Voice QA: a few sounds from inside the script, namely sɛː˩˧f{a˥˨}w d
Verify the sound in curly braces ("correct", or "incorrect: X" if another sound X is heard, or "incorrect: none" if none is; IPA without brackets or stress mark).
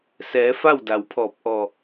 correct